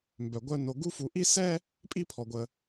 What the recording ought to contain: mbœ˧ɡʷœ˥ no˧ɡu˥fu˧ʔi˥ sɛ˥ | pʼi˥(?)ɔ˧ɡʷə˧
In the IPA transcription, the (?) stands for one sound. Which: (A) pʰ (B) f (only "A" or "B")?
A